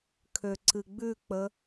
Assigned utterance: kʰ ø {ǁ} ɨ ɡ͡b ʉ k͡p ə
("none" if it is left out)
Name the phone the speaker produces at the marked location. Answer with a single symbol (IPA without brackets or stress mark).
ǀ